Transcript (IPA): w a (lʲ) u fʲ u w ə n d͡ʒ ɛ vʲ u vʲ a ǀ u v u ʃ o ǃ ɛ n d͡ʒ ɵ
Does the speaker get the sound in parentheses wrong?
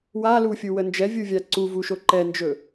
yes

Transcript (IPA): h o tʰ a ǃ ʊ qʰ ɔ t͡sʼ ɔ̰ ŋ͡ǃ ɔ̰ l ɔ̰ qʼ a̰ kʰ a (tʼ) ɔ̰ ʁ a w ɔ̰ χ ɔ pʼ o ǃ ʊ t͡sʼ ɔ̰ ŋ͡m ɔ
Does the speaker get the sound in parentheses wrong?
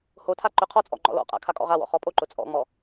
yes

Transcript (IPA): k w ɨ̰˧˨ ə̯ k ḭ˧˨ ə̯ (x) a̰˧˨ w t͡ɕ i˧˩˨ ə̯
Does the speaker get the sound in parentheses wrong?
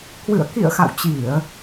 no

